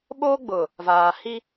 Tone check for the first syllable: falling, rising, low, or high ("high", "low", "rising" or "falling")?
high